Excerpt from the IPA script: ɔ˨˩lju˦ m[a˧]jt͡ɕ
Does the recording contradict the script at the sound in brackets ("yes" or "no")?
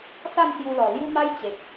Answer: yes